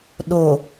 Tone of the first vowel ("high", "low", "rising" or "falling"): low